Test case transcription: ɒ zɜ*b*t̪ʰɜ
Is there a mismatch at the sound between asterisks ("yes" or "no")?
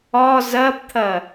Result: no